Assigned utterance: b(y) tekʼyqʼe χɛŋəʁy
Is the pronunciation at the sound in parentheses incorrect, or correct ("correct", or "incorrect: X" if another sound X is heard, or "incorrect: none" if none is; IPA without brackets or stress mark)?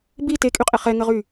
incorrect: i